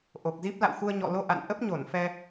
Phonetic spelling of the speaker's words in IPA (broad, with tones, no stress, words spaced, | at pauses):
ʔo˨˩k̚zi˦˥p̚ la̰˧˨wxu˧ə̯ ɲɔ̰˧˨lo˧ʔa̰˧˨n ʔə˦˥p̚ɲo˧˩nfɛ˧